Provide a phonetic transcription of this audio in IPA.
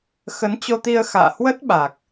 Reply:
x ə˨˦ n t͡ɕ o˧ t̪ i˧ ə̯ x a̰ː˧˨ h w ə˦˥ t̚ ɓ a˨˩ k̚

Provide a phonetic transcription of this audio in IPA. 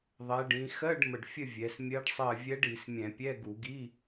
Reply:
ðˤ ɛ˩˧ ɖ ĩ˩˧ x ɜ˧˥˧ ɖ m ə˨˩ ɖ fʲ ə˦˨ vʲ ɛ˩˧ s mʲ ɜ˧˥ ɖ sˤ ɜ˦˨ vʲ ɛ˧˥ ɖ i˧˩˧ s mʲ ɛ̃˧˩˧ pʲ ɛ˧˥˧ ɡ u˧˩˧ ɡ i˧˥˧

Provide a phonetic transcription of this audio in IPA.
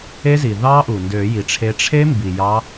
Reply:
e˦˥ z i˩ ð ɑ˦˥ ʔ u˩ n d ø˨˩˦ j i˩ ʈ͡ʂʰ e˨˦ ʈ͡ʂʰ e˦˥ m b i˩ j ɑ˨˦

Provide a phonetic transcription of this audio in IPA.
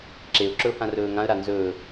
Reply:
ǁ e ʊ̯ ǁ ɵ ʊ̯ h ã r ɵː ŋ ã ə̯ ɾ a n z ɵː

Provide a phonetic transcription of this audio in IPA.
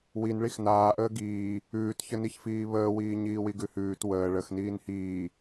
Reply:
w i n ɭ i x n aː ʔ əː ɡ iː | ʉː t ç ə n i ç f iː β əː w iː ɲ iː w i ɡ ʉ h ʉː t w əː ɭ ə x n iː n h iː

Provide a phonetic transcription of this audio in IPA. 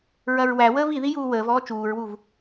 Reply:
ɹ ɐ ɹ w æ w əː v i ð i j uː w əː v ɔː t͡ʃ uː ɹ w u v

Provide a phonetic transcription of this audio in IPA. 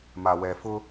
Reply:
m a˨ w ɛ˨ f ʊ˦

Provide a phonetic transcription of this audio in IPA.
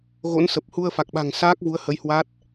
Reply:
ɣ o̰˧˥ n s ə˨˩ p̚ h u˧ ə̯ f a˨˩ k̚ ɓ a̤˨˩ ŋ s aː˦˥ k̚ v u˨˦ ə̯ h ə˨˦ j h w a˦˥ t̚

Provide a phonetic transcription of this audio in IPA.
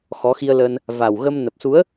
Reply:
x ɔ˨˦ x i˧ ə̯ l ə˧ n | v a˨˩ w ɣ ə˧ m n ə˨˩ p̚ s u˨˦ ə̯

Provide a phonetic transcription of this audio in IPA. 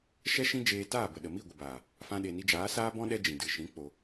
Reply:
ʃ ɛ˦ ʃ ĩ˦ d͡ʒ eː˧ t aː˦˨ b ə˨ ɗ ə˨ m i˦˨ ɡʷ ə˨ b aː˨ | f ã˦ ɗ e˧ n i˧ d͡ʒ aː˨˦ s aː˦ b ɔ̃˦ ɗ ɛ˦ d͡ʒ ĩ˨ d ɨ˨ ʃ ĩ˨˦ k͡p o˧

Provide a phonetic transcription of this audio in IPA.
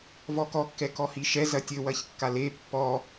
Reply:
v ɔ k ɔ kː ɛ k ɔ h i ʃ ɛ z ɐ tʲ ɘ w ɐ ç kː a l e pː ɔ

